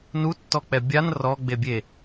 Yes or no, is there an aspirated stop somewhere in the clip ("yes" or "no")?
no